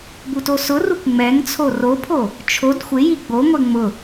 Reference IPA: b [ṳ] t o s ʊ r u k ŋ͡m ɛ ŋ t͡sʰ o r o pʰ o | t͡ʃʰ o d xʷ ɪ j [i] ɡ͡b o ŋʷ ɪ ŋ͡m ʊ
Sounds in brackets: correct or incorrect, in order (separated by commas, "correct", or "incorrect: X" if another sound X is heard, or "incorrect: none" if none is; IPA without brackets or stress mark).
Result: incorrect: u, correct